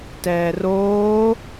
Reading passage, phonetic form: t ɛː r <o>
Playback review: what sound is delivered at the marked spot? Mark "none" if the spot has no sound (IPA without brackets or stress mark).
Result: oː